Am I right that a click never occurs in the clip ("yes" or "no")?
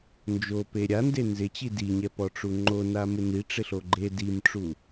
no